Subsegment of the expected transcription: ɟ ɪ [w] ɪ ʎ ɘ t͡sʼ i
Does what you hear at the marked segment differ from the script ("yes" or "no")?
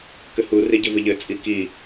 yes